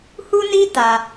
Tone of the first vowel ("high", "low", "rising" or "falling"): high